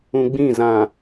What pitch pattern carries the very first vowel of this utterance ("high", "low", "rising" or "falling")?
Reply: low